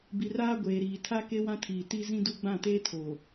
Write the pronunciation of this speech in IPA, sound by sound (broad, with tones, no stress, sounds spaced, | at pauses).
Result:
b i˨ r aː˦ ɡʷ eː˨ ɾ iː˨ tʰ a˦ k e˦ w ã˦ tʰ iː˨ t i˦ z ĩ˦ d u˦ ɡ͡b ã˦˨ t eː˦ tʰ oː˨